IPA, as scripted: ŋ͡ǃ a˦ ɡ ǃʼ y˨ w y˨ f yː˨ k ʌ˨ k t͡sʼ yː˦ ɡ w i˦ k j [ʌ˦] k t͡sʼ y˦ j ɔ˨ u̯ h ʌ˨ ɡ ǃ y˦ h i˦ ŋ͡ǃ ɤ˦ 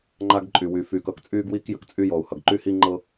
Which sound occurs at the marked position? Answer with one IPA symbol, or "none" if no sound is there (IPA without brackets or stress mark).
ə˦